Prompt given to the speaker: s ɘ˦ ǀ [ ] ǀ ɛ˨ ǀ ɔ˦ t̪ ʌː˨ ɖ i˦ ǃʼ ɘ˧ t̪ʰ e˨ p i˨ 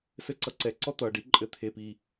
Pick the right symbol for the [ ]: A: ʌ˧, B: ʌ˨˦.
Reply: A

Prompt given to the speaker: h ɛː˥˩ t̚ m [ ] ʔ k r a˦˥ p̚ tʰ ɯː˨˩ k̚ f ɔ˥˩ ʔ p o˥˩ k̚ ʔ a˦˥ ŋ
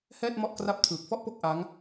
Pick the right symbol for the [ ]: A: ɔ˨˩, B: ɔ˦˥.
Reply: B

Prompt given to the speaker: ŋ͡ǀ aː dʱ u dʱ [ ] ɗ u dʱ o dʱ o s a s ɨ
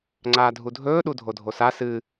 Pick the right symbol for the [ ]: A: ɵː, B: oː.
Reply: A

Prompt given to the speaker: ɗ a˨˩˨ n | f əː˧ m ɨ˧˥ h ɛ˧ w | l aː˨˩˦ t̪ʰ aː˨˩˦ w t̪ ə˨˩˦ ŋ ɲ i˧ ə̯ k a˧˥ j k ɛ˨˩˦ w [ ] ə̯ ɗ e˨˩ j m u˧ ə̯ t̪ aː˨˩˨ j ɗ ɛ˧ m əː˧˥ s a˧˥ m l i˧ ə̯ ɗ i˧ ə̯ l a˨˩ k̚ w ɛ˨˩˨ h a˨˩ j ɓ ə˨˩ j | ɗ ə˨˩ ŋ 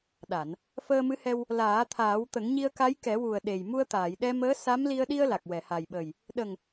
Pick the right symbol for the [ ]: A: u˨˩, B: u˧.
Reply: A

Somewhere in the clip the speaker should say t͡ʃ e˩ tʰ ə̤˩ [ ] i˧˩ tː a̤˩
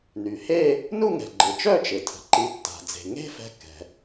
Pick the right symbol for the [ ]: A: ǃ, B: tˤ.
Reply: A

